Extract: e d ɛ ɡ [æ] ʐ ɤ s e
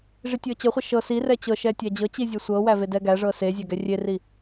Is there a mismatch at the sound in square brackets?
no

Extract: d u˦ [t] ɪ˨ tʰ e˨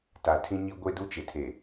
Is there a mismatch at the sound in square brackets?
yes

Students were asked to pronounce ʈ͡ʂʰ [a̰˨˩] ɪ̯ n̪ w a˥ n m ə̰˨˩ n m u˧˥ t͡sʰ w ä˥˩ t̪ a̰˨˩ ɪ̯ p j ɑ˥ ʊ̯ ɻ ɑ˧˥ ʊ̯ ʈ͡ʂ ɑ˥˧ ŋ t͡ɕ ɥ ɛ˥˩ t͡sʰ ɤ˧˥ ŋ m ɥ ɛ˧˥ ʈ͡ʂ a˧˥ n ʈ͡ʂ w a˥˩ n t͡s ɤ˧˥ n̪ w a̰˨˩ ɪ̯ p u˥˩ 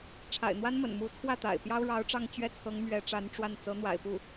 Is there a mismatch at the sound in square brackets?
no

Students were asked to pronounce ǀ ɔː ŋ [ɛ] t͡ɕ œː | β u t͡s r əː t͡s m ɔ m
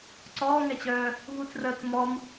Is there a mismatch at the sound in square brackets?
no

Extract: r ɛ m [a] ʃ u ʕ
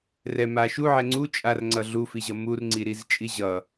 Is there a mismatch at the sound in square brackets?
no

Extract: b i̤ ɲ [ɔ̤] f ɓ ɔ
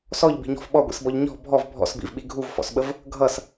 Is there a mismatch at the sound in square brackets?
no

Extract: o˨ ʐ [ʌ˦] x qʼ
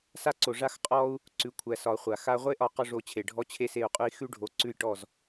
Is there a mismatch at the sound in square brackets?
yes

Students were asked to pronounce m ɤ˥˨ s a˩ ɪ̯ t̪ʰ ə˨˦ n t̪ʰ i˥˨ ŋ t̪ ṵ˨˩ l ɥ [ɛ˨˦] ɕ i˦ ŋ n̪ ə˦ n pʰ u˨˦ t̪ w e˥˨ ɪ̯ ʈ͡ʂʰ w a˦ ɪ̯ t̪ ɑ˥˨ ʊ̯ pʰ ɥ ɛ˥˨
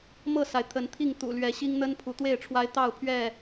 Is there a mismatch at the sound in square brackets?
no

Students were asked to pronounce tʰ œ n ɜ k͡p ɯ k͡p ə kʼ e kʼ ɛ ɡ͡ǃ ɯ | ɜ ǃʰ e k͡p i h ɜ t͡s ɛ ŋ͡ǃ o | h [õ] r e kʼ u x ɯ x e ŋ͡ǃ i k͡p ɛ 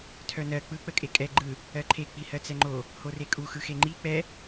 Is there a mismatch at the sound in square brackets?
yes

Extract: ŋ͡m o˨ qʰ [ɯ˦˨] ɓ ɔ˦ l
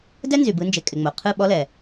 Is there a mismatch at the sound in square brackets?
no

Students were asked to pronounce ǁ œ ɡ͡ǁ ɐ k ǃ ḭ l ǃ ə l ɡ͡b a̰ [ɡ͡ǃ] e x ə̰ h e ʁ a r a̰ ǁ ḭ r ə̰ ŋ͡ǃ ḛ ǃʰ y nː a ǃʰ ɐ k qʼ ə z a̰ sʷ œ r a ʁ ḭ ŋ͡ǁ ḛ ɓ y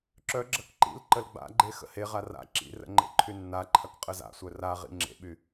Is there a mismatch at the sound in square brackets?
no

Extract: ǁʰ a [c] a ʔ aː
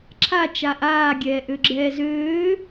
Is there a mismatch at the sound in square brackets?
yes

